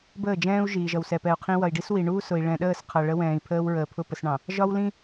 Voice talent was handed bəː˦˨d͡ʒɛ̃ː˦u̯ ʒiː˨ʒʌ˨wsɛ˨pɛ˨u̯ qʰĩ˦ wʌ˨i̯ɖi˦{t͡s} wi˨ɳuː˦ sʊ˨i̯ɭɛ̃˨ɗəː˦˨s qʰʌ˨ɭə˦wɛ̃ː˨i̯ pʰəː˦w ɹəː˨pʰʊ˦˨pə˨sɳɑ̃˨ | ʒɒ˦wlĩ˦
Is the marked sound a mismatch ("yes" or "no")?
yes